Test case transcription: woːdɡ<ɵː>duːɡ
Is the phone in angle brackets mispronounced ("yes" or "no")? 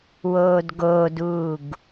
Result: yes